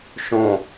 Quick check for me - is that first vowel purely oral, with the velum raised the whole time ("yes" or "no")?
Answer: no